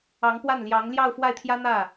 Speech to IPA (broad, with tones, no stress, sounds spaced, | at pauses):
ɑ˧˥ ŋ p w a˥˩ n l j ɑ˧˥ ŋ l j ɑ˥˧ ʊ̯ f w a˥˩ ɪ̯ t̪ʰ j ä˥ n̪ ä˥˩